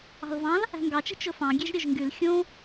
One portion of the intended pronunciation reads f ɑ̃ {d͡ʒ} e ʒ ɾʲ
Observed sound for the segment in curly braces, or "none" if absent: ɡʲ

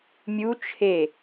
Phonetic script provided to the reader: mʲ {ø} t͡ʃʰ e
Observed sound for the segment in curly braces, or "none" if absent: u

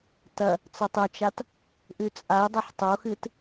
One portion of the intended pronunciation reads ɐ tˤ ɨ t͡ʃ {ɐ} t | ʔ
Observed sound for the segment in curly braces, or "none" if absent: a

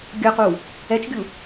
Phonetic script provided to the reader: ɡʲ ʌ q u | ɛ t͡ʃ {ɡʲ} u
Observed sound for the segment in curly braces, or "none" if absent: ɡʲ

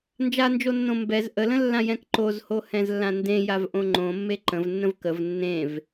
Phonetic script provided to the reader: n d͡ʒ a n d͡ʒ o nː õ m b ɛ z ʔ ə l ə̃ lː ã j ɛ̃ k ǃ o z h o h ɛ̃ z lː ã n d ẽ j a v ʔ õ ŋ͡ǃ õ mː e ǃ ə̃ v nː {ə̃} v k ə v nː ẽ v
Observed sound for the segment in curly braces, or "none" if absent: ə̃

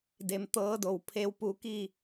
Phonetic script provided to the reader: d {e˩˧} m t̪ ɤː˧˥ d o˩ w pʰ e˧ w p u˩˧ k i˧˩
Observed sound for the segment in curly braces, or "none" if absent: e˩˧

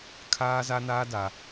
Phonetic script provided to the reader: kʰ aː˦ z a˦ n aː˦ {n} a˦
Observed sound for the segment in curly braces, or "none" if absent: d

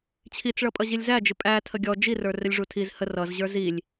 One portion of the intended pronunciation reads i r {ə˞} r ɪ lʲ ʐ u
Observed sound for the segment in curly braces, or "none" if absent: ə˞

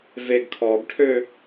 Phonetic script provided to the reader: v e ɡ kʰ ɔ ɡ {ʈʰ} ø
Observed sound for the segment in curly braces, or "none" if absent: ʈʰ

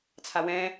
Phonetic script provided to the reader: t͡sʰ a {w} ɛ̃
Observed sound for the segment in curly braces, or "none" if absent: w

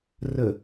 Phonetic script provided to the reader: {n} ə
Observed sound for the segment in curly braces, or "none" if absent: r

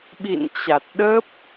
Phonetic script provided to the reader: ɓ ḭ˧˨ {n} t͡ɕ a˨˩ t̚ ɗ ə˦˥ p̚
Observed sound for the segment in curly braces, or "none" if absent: n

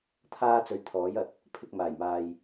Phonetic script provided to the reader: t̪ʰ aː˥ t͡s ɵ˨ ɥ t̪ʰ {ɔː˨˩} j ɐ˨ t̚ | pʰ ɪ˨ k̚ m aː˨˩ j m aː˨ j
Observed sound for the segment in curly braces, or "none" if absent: ɔː˨˥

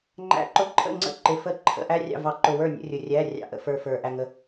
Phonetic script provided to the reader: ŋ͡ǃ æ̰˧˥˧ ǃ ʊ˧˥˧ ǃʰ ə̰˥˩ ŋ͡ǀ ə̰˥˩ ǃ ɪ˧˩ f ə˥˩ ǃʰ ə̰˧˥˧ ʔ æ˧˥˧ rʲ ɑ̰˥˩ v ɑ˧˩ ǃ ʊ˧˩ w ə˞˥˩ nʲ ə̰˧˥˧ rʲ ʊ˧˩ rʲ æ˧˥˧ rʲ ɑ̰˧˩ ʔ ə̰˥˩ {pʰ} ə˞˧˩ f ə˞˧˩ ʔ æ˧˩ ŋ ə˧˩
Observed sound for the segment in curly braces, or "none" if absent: f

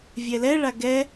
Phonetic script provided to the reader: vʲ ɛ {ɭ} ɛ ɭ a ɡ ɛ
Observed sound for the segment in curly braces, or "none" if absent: l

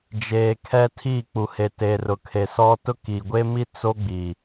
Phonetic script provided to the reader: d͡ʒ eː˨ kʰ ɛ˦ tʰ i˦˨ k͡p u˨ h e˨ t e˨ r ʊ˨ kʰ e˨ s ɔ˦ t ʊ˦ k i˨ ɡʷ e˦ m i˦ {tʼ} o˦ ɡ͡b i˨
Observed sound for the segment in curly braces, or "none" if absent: t͡s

